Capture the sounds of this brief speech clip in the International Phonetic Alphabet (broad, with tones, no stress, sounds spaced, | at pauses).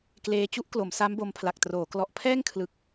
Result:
k l eː˧ t͡ɕ u˦˥ ʔ k l o˩˦ m s a˦˥ m b o˧ m pʰ l a˨˩ k̚ t r oː˩˦ k l ɔ˨˩ ʔ pʰ ɛː˥˩ ŋ kʰ l ɯ˨˩ k̚